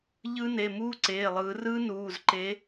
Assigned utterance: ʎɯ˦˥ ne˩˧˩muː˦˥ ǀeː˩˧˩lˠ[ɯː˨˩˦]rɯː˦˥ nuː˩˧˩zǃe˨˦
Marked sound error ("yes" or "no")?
no